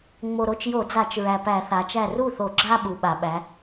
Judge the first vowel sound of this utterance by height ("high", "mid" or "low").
mid